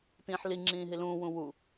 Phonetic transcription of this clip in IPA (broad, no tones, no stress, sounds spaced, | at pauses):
t ĩː ħ l i ŋ͡ǁ ĩː ɦ i l ũː w ũ w u